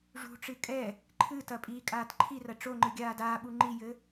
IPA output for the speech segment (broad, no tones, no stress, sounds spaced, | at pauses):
ʐ ṳ ʈ͡ʂ ɨ kʼ ɛ | ǃʰ ɨ t ɐ pʼ iː kʼ aː t ǃʰ i r ɐ ʈ͡ʂ o ŋ͡ǃ ɨ ɡʲ aː d aː ɓ u ŋ͡ǃ i j ɘ